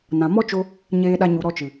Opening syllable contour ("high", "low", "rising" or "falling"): low